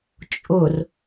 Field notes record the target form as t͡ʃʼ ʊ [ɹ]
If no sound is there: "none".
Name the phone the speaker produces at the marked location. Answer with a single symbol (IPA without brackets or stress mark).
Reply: r